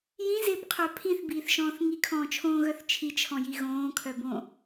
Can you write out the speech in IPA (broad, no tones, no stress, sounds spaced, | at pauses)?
j ĩ z ɪː p qʰ œ pʰ ĩ θ b iː θ ʃ ɔ̃ː θ ŋ i kʰ ɔ̃ː t͡ʃʰ õː ɣ œ θ t͡ʃʰ i t͡ʃʰ ɔ̃ j i ɣ õː kʰ œ b õ